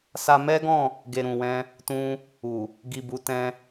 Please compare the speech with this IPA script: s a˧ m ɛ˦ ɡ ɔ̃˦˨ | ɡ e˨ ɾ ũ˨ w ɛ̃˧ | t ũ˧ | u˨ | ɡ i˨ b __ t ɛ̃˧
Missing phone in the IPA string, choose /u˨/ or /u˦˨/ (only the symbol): u˨